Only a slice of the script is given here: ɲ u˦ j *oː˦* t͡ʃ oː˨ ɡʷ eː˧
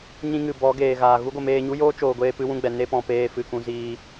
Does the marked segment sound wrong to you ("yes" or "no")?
no